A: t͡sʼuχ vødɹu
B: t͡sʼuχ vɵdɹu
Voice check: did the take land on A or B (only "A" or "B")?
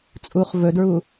B